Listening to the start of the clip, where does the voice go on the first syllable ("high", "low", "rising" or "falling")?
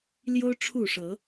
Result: high